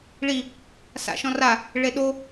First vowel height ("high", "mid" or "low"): high